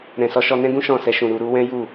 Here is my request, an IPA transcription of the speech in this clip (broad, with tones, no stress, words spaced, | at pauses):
ɾɛ̃˨sɔ˨˦ ʃɔ˧nɛ̃˦ɡũ˦ ʃɔ̃˦˨sɛ˧ʃũ˨ ɾu˨ɾu˧ wɛ̃˦ ju˦˨